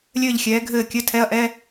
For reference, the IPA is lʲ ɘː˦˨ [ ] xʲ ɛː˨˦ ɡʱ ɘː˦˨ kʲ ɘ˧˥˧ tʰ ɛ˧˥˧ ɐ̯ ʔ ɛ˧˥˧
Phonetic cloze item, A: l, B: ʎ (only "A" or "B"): B